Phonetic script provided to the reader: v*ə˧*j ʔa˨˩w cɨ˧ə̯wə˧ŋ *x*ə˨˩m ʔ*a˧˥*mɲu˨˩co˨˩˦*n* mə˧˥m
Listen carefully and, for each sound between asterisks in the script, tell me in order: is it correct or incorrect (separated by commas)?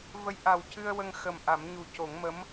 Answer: incorrect, correct, incorrect, incorrect